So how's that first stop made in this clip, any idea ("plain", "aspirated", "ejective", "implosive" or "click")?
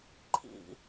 click